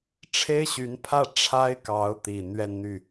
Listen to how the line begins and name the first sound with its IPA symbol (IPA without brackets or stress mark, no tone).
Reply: ʈ͡ʂʰ